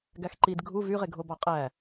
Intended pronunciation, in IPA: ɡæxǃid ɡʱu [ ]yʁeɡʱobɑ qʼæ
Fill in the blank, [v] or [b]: v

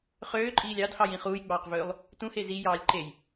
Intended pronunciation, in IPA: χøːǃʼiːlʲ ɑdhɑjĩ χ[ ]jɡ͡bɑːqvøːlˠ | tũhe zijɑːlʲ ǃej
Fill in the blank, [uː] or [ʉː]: uː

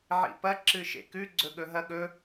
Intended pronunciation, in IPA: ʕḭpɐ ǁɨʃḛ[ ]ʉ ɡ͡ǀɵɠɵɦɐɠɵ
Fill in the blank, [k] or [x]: k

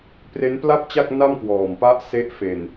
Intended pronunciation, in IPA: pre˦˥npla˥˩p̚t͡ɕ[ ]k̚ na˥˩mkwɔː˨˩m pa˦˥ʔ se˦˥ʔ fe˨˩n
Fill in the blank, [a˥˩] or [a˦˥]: a˥˩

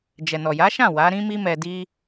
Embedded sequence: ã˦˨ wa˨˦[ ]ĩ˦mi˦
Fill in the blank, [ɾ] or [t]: ɾ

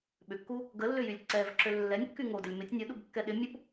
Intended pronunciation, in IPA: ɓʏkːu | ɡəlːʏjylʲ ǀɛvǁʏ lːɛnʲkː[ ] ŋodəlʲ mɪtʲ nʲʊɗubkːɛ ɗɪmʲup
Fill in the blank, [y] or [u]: y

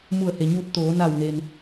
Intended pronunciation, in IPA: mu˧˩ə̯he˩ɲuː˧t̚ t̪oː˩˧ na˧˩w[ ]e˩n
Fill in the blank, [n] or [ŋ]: n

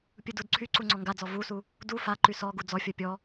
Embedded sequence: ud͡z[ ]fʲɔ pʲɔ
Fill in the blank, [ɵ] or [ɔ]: ɔ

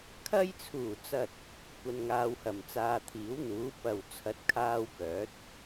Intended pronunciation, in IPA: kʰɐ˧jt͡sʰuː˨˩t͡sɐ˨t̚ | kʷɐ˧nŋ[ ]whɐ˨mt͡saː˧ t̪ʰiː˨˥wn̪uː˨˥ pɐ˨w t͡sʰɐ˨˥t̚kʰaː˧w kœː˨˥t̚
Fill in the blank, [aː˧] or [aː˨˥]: aː˧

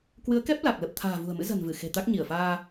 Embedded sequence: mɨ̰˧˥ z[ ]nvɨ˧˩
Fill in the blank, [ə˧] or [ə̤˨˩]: ə̤˨˩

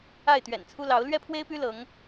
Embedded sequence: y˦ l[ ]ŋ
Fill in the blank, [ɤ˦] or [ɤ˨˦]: ɤ˨˦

